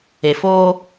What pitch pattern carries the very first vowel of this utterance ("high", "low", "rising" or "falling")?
low